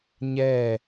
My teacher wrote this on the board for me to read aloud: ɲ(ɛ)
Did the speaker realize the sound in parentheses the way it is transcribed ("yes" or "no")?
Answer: yes